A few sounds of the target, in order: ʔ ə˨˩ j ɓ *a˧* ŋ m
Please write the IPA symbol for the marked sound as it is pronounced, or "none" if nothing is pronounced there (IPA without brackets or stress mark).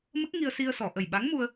a˧˥